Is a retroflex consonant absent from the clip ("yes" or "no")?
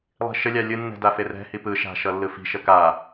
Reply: yes